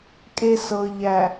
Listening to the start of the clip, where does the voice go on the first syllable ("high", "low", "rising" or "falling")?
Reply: high